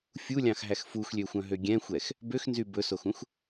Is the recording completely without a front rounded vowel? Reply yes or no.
no